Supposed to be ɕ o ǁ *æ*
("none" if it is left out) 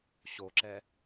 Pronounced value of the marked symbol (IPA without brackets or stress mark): ɛ